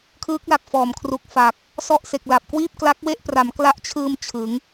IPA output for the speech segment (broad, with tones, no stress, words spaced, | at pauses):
kʰɯː˦˥k̚la˨˩k̚fɔː˨˩m kʰru˨˩k̚fa˨˩k̚ | sɔ˥˩ʔse˨˩k̚la˨˩p̚ kwiː˥˩p̚kla˦˥k̚we˥˩ʔpra˩˦m kla˦˥ʔt͡ɕʰɯː˧m t͡ɕʰɯ˩˦ŋ